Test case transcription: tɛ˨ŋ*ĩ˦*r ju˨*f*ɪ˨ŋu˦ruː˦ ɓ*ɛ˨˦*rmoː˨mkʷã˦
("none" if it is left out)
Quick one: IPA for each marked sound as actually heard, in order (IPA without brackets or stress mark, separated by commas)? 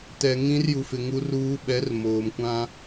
ĩ˦, f, ɛ˨˦